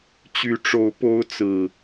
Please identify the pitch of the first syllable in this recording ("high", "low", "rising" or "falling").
rising